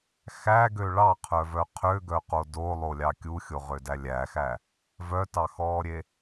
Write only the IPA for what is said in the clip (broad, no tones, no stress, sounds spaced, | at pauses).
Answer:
x æ ɡ ø ɭ ɑ qʰ œ v œ qʰ ø ɡ œ q o d o lˠ o lʲ ɑ kʲ u xʲ o ʁ ø d æ lʲ æ x æ | v œ t ɑ x ɔː ɾʲ e